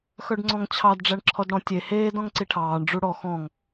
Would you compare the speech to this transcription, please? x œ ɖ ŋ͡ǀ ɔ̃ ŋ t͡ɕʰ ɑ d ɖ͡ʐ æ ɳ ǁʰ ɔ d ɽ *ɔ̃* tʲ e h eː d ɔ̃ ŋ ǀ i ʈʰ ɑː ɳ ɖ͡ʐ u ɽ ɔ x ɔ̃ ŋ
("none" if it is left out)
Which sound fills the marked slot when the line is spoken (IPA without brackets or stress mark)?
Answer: ɔ̃